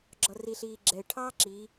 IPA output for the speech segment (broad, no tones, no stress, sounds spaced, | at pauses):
ɡ͡ǁ ɒ r i ɬ iː ɡ͡ǁ ɛ ɪ̯ ʈʰ ɑː ǁ i